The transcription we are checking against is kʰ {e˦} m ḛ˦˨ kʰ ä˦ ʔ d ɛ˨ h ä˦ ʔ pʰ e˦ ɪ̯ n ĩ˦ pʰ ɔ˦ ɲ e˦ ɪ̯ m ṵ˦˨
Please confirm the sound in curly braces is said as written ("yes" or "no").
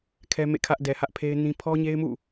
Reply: no